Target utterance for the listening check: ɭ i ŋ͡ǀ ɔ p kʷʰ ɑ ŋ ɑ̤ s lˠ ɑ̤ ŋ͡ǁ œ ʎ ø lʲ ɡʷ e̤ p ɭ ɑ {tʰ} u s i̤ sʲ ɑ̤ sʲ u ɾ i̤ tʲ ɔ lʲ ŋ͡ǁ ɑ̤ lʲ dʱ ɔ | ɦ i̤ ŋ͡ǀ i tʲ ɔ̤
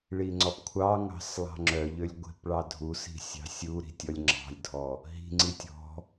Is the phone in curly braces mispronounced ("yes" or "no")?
yes